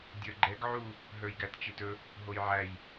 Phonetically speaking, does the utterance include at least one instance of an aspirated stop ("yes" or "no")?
no